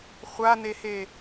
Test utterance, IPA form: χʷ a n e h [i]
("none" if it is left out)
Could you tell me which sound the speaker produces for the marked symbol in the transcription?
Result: e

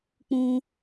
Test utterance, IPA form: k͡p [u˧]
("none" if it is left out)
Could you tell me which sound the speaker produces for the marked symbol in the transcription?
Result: ũ˧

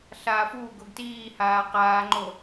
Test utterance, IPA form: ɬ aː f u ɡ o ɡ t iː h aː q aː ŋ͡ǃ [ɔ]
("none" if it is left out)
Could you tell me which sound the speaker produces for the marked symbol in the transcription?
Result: o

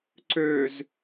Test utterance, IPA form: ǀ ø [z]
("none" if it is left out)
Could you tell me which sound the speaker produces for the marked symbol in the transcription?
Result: z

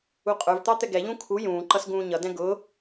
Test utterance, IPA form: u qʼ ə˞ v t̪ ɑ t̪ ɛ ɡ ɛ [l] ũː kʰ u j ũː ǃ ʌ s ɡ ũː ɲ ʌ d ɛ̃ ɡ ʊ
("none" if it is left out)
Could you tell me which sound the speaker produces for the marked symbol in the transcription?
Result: ʎ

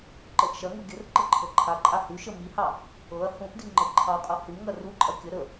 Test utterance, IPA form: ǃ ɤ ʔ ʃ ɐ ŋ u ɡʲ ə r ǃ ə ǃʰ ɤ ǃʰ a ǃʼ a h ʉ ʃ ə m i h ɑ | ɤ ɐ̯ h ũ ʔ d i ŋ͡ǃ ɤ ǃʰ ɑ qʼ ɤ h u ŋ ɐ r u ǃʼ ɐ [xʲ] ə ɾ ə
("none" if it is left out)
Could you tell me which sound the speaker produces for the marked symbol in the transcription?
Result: kʲ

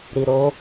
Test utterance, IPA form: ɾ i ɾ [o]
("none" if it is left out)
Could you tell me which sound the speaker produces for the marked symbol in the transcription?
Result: o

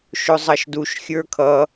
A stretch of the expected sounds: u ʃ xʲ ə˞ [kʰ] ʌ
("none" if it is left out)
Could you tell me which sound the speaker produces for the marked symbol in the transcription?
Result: kʰ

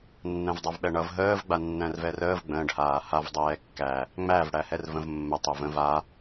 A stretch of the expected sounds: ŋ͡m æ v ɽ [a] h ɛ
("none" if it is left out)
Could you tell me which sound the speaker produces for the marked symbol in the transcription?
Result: æ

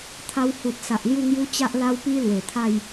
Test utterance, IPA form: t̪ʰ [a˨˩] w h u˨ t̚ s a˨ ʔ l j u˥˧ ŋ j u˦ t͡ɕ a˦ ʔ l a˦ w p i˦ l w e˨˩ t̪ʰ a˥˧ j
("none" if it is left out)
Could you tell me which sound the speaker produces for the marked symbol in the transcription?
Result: a˧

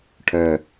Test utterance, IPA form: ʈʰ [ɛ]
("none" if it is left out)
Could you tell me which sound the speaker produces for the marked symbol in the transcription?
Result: œ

